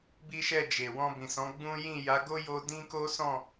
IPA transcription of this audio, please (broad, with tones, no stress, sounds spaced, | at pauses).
b i˦ ʃ ɛ˦˨ d͡ʒ e˨ w ɔ̃˧ b ĩ˨ s ɔ̃˨˦ ɡ͡b ũ˦ j ĩ˦˨ j a˨˦ ɡ o˦ j o˧ d ĩ˦ k o˦ s ɔ̃˦˨